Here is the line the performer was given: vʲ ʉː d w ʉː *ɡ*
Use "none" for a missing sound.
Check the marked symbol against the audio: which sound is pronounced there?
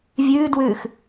x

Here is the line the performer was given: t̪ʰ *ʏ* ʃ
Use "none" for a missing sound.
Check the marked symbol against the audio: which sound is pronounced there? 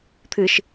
ɨ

